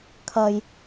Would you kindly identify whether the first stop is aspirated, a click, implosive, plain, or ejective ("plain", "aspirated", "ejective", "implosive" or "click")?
aspirated